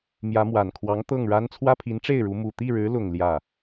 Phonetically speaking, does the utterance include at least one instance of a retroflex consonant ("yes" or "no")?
yes